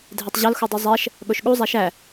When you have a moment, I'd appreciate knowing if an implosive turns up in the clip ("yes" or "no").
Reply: yes